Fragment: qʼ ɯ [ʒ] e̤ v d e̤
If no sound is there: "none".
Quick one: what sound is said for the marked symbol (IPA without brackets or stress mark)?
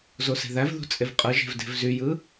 ʒ